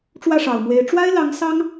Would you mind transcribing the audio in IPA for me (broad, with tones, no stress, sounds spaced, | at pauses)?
ʈ͡ʂ w ä˥˩ ʂ ɑ˨˩ ʊ̯ m w e˧˥ ɪ̯ ʈ͡ʂ w a˥ ɪ̯ l ɑ˧˥ ŋ s ɑ˥ ŋ